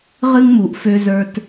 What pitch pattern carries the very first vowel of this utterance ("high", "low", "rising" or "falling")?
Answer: high